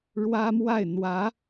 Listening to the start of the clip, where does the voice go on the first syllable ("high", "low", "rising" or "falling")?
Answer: high